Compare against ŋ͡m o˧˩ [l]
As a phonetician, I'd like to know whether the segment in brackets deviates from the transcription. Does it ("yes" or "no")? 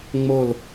no